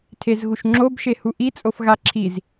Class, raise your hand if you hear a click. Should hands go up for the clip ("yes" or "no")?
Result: yes